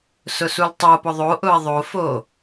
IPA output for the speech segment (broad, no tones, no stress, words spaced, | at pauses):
sʊsultˤopʊ ðˤoʔʊɐ̯ ðˤofo